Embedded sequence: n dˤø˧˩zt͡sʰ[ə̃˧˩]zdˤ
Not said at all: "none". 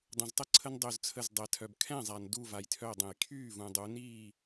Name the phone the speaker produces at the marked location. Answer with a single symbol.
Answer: ə˧˩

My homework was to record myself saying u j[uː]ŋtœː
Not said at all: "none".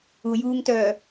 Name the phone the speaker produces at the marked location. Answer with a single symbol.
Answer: uː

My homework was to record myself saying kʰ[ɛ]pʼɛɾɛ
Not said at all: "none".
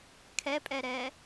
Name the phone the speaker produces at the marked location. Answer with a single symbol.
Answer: ɛ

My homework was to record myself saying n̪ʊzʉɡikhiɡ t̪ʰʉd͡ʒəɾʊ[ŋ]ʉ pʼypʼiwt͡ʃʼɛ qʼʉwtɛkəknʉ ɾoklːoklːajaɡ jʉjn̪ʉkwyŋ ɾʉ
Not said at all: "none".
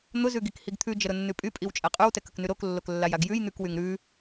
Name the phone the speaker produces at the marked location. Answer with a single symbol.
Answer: nː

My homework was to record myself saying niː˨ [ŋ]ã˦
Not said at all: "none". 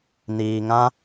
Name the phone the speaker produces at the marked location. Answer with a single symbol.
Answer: ŋ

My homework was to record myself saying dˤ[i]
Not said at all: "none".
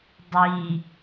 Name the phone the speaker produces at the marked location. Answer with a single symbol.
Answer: i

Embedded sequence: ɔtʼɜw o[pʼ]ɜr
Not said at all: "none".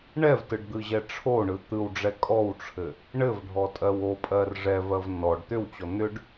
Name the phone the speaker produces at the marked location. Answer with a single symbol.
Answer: pʼ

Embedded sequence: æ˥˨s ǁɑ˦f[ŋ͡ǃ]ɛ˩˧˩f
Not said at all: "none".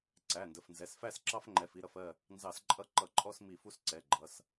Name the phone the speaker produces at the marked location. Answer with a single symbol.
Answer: ŋ͡ǃ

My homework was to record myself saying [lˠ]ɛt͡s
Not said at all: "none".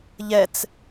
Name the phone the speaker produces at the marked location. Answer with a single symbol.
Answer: ʎ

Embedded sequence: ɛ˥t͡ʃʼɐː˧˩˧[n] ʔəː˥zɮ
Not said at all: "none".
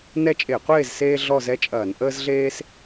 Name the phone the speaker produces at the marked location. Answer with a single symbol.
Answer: n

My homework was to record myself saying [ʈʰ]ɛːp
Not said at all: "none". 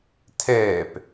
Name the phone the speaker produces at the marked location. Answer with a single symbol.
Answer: tʰ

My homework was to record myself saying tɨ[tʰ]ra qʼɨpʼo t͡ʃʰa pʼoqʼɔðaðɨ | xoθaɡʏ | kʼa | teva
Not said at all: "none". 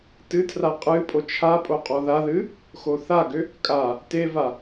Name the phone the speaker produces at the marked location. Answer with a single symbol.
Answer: tʰ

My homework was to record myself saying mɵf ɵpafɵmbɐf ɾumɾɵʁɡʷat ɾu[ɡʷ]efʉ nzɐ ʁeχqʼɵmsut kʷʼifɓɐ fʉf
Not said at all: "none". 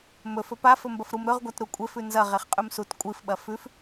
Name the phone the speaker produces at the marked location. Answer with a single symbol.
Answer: kʷʼ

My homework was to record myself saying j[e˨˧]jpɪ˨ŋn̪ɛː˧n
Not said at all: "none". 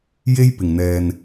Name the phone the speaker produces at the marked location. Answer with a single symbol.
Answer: e˥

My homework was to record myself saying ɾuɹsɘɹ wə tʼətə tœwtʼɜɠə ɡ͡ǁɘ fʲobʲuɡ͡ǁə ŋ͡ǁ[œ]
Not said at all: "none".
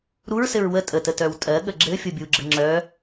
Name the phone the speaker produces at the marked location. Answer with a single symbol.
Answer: œ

